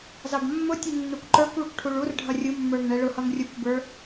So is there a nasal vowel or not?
no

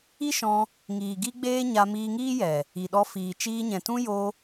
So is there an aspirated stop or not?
no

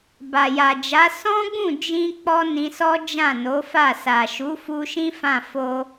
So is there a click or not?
no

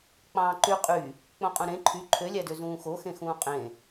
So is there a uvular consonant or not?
yes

